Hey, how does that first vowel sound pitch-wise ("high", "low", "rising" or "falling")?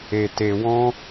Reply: low